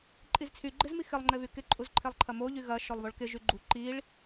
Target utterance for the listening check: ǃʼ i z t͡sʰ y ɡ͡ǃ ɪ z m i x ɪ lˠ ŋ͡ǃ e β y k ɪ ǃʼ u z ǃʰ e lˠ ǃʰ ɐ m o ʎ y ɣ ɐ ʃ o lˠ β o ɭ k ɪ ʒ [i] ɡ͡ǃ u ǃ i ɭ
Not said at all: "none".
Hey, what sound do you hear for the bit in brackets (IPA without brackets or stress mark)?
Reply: y